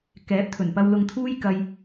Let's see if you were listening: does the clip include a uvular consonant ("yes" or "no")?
no